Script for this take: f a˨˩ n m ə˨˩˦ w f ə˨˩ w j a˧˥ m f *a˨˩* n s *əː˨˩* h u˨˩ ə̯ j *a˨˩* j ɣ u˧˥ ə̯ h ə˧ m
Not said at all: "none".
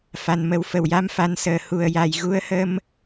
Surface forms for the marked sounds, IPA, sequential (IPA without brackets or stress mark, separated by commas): a˧˥, əː˨˩, a˨˩